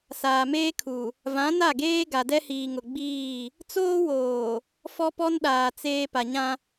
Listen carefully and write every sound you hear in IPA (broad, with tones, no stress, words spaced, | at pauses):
saː˨meː˦kʰu˨ | vã˨˦na˦˨ɡeː˦ ɡa˨dɛ˦hiː˨ ŋʊ˨ɡ͡biː˦˨ | t͡soː˦woː˨ | fɔ˦pɔ˦nɗaː˨ t͡seː˨ pa˨ɲã˦